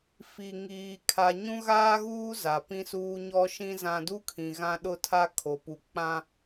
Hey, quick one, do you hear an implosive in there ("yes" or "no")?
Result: yes